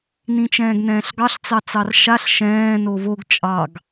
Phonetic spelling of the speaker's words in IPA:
n ĩ t͡ʃ ɛ̃ː ɡ n ɛ̃ː ɬ ɡ ɑ ɬ t͡s ɑ t͡s ɑ r ʃ a ɬ ʃ ɛ̃ː n o v o ɡ t͡ʃʼ ɑ ɡ

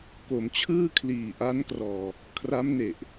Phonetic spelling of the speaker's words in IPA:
k o˩˦ m t͡ɕʰ ɯː˥˩ kʰ l iː˨˩ ʔ a˦˥ n k r ɔː˧ | kʰ r a˦˥ m n e˨˩ ʔ

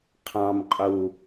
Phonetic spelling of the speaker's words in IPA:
qʰ ɑ̃ m qʼ u

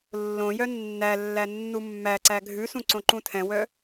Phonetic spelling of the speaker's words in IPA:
lː õ j œ nː æ lː æ nː u mː æ ǀ æ ɡʱ ʉ s ũ ǀ õ ǃ ũ tʰ ɛ̃ w œ

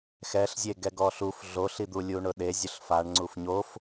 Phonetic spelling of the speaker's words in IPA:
x ɛ ɬ zʲ e ɡ ɛ ɡ ɔ ɬ u f ɮ o ɬ i d̪ u lʲ u ɳ ʊ ɗ e zʲ ʊ ɬ f a ɳ ŋ͡ǀ u f ɲ o f

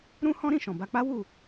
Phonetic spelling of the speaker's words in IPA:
ɾ ũ˦ h ɔ̃˦ ɾ ĩ˦˨ ʃ ɔ̃˨ b a˧ k͡p a˦ w u˦˨

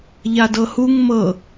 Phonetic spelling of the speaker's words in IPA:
ʎ a d ɤ h u ŋ m ɤ

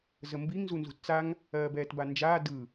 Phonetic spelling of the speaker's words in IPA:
z ə m b i ŋ z u n z ṳ t t͡s a ŋ | ɜː b ɛː t b a n d͡ʒ aː d ɯ

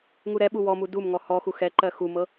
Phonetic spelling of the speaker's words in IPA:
ŋ u ɾ ɛ ɓ u w ɔ m u d u m ŋ ɔ h ɔ x u x ɛ ǃ ɜ x u m ɤ

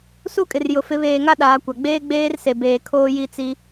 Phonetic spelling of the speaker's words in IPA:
s u˦ kʼ ɪ˨ r j ʊ˨ f ɪ˨˦ β eː˨ ŋ a˦ ɗ aː˨˦ kʷ a˨ ɡ͡b eː˦ ɡ͡b eː˦ r s e˨ b eː˨ kʰ oː˦ j i˦ t͡s i˦

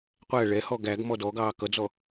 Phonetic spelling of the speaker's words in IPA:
qʷ æ ɭ ɛ h ɔ ɡ æ ɡ m ɔ d ɔ ɡ ɑː k ʌ d͡z ɔ

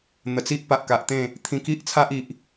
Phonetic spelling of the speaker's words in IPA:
n̪ ə˨˩ t͡s i˦ ʔ p a˨ ʔ k a˨ ʔ t̪ ẽ˥˧ | t̪ʰ ĩ˧ k i˦ ʔ t͡sʰ a˦ ʔ i˨ ʔ

